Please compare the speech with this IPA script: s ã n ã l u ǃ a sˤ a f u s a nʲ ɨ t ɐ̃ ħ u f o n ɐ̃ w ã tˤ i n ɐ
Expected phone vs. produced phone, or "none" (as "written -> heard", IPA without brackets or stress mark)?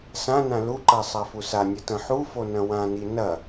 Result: tˤ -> n